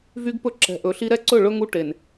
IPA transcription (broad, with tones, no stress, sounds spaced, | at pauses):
v y˦ ɡ p ɵ˦ ǁ ɛ̤˨ ʔ ɵ˨ ɬ i˦ ɾ ɛ˦ ǀ ɵ˦˨ ɭ ɵ˦ ŋ u˦ ʈ e˨ n